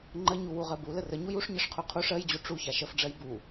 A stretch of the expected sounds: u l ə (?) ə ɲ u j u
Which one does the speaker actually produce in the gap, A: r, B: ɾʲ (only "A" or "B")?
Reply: A